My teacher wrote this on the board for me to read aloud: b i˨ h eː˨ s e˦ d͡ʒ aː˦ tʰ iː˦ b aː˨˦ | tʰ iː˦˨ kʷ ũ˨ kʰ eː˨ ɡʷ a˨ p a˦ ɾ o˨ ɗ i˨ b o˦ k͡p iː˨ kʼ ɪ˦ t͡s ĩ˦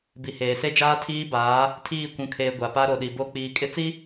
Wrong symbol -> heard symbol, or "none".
ĩ˦ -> i˦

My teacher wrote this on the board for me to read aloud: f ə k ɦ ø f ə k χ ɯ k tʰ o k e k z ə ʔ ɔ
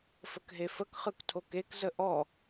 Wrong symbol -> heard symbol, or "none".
ø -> e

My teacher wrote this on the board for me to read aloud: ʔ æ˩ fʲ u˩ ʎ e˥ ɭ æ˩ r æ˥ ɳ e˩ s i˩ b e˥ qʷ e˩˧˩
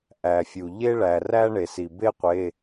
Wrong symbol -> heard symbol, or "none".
none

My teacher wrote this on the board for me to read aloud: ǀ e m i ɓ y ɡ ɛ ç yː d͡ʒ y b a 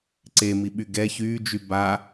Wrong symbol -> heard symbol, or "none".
none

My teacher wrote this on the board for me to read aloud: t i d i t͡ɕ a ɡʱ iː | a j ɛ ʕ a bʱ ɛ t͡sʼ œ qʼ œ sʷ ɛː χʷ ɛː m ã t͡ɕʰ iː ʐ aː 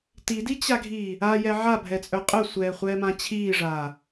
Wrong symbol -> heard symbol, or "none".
none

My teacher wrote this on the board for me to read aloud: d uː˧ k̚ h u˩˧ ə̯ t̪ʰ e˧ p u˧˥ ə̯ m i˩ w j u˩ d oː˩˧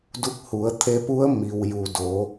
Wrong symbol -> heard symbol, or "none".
uː˧ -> u˧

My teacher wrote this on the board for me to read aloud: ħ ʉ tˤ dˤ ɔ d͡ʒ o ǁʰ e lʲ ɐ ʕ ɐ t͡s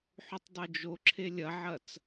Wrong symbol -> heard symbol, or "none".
ɔ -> o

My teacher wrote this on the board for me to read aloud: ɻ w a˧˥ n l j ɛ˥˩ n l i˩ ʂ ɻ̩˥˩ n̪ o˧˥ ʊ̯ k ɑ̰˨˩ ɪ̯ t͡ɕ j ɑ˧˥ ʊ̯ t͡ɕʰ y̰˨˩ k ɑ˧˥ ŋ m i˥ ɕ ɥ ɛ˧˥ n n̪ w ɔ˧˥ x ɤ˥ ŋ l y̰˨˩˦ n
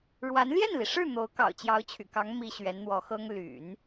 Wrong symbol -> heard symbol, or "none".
ɪ̯ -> ʊ̯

